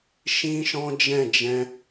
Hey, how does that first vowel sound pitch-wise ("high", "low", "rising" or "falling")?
high